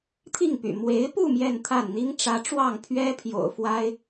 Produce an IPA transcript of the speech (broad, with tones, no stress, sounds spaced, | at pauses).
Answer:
t̪ʰ i˥˩ ŋ p y̰˨˩ m w e˧˥ ɪ̯ p u˥˧ m j ɛ˥˧ n t̪ʰ a˥˩ n n̪ i˥ ŋ ʈ͡ʂ ä˧˥ ʈ͡ʂ w ɑ˥˩ ŋ pʰ ɥ ɛ˥ pʰ j o̰˨˩ ʊ̯ f w a˥ ɪ̯